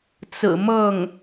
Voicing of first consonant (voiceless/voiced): voiceless